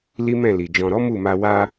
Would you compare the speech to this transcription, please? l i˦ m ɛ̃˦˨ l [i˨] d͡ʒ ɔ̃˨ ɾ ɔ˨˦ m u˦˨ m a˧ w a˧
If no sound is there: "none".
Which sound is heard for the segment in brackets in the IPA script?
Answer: i˨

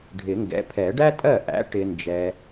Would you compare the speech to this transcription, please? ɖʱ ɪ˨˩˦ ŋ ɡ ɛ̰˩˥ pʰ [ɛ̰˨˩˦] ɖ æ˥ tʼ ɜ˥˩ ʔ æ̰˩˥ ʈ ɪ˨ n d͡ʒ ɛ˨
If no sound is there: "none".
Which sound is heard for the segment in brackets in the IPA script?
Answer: ɛ˨˩˦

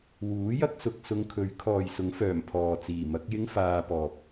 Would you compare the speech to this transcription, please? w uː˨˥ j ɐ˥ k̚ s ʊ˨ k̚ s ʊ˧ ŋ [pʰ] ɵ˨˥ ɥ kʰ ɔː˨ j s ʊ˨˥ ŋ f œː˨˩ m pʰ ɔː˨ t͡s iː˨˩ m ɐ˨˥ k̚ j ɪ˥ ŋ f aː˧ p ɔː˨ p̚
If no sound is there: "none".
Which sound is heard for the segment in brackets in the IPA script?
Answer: kʰ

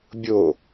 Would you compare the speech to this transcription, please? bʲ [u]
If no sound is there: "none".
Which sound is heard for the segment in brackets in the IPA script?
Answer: o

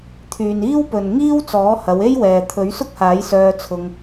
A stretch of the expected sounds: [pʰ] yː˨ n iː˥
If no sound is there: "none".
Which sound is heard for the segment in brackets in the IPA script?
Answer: t̪ʰ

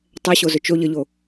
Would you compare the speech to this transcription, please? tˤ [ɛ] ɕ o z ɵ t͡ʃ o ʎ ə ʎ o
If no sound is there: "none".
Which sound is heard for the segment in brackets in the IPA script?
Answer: ɛ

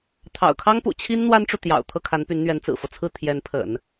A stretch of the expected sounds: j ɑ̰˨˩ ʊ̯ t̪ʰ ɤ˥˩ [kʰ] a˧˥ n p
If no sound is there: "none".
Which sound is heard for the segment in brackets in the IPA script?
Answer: kʰ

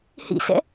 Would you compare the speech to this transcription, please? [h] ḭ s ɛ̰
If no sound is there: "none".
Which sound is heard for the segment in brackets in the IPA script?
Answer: h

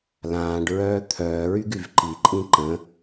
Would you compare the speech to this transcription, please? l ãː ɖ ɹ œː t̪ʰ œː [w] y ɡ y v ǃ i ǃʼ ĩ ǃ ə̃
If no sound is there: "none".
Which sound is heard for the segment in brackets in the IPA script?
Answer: ɹ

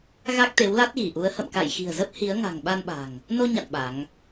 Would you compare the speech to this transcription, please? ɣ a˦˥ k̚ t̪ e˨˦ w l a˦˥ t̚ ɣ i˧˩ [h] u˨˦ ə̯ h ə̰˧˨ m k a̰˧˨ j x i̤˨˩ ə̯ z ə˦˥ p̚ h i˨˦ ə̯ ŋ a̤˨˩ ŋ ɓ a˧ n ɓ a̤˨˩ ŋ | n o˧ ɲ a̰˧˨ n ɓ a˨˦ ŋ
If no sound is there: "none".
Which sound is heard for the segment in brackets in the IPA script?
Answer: ʔ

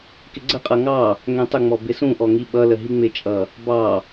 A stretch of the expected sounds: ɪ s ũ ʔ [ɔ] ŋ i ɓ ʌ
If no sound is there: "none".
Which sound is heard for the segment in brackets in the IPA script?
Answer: ɔ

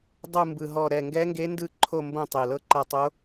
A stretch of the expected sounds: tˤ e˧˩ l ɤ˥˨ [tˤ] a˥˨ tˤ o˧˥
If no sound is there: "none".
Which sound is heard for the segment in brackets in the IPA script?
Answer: ǃ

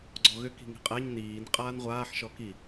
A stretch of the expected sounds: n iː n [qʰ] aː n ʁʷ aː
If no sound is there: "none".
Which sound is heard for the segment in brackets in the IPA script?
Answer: qʼ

